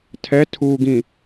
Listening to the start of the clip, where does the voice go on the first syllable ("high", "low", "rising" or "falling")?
rising